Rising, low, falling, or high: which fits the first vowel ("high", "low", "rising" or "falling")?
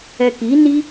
low